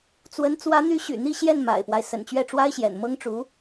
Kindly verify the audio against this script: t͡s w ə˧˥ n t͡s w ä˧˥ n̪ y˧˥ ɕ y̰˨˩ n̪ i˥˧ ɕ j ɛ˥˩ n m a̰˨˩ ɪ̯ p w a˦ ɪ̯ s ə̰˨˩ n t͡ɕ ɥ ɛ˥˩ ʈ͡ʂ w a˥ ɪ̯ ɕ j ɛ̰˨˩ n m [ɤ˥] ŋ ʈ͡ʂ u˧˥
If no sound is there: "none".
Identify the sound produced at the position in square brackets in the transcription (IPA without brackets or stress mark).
ɤ˥